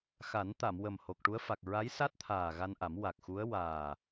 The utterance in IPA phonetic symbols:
x a˨˩˦ n t̪ a˨˩˨ m w ə˨˩ m h o˨˩ k̚ ʈ u˧˥ ə̯ f a˨˩ k̚ ɹ a˧˥ j s a˦˥ t̚ t̪ʰ aː˨˩ ɣ a˧ n ʔ a˨˩˦ m w a˨˩ k̚ x u˧˥ ə̯ w aː˨˩

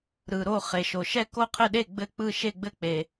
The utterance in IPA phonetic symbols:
ɾ ɯ˩ ɾ o˥˩ χ e˩ ʃ o˩ ʃ ɛ˥˩ k o˥˩ qʰ ɘ˥˩ ɗ e˥˩ ɡ͡b ɘ˥˩ k͡p ɯ˥˩ ʃ e˥˩ ɡ͡b ɘ˥˩ k͡p e˩

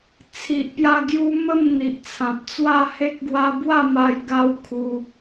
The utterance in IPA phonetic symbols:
t͡sʰ i˨ ʔ p j a˧ ɡ j u˦ m ə˥˧ m n̪ i˨ ʔ t͡sʰ ã˨ p̚ t͡s w a˥˧ h e˦ k̚ ɡ w a˦ b w a˥˧ m a˧ j ɡ a˦ w kʰ u˧

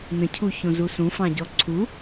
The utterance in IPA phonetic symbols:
n ə̃ cʰ u ç õ z u s ũ f ɑ̃ ɟ ɔ ǀʰ u

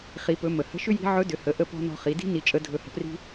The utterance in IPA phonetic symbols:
χ i˩˧ p ɵ˩˧ m ə˩ h ə̤˧˥ ʃ ʏ˥ j i̤˧˥ ʕ ɵ˧˥ d ʏ˩˧ h ə˩˧ ʔ ə˧ p ɔ̤˧ n ɔ̤˧ χ i˩˧ d i̤˥ n i˧ t͡ʃʼ ə˧˥ dʱ ɵ˧˥ h ə̤˧ p r i̤˥

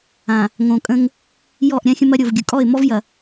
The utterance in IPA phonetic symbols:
ã˨ | ŋ õ˨ kʼ ə̃˦ ŋ | j ɔ˦˨ ʔ ɾʲ ã˦ xʲ ə̃˦ m ɐ˦ ɾʲ o˨ v ɡʲ ɯ˨ kʼ ɔ˦˨ ɪ̯ m ɔ˦ v j ɐ˨

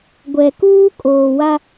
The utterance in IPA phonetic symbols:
ɡʷ ɛ˨ k uː˦ kʼ oː˨ w a˦

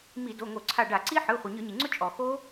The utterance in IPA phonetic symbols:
m i˧˩˧ d o˩˧˩ ŋ o˧˩˧ ǀʰ a˧˩ ɖ a˧˩˧ ǀ i˦˥ ħ ɯ˩˧˩ χʷ i˩ ɲ ɯ˧˩˧ ɲ i˩ ŋ͡ǀ ʊ˦˥ t͡ʃʼ ɔ˩ x o˦˥

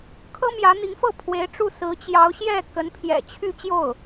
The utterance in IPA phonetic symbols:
kʰ ɤ˥ m j ä˧˥ n̪ i˧˥ ŋ f ɤ˥˩ pʰ w e˧˥ ɪ̯ ʈ͡ʂ u˥˩ s ɹ̩˧˥ t͡ɕ j ɑ˧˥ ʊ̯ ɕ j ɛ˥˩ k ə˧˥ n pʰ j ɛ̰˨˩ t͡ɕʰ y˥˧ t͡ɕ j o˥˩ ʊ̯

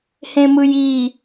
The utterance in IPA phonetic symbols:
h ẽ m ɯ j i

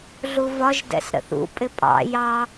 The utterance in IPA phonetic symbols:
ɮ u v ɒ ʒ d ɛ̰ s ɾ ə̰ θ ṵ pʼ ɪ pʼ ɑ̰ j ɑ

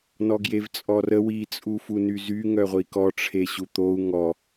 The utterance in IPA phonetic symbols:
n ɔ ɡ j e v t͡sʼ ɔ r ə w i t͡sʼ u f u n y z y ŋ œ ʁʷ i k ɔ ʈ͡ʂʰ e ɕ u t̪ o u̯ ŋ ɔ

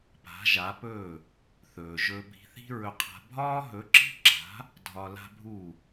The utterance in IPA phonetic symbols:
p a̤˩˥ ʒ a˩˥ p ɵ˥˩ | θ ɵː˩ ʒ ɵ˧ bʱ i̤˧ θ i̤˥ ɹ ɵ˧ qʰ a̤˧ bʱ ɒː˥ ɦ ɵ˩˥ ǁ i̤˥ ǁ a̤˩˥ | dʱ ɒ˧ l a̤˥ bʱ u˥˩

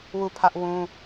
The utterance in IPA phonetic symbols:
w u˦˨ pʰ ä˦ ʔ w ũ˦

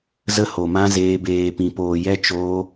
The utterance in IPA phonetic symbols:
z ə˦ h o˧ m ã˦ z eː˦ b eː˧ p ĩ˧ p oː˧ j ɛ˦ t͡ʃ oː˦

